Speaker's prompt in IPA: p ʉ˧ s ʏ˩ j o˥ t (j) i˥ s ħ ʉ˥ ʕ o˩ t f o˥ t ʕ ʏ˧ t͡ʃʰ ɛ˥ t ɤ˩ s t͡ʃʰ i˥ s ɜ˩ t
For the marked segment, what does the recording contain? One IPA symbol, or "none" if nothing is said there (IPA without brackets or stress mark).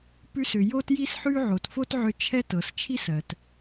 j